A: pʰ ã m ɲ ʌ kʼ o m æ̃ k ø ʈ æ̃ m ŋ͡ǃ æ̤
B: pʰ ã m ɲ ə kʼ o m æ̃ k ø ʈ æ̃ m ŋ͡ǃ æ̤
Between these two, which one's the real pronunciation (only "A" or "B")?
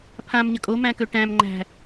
B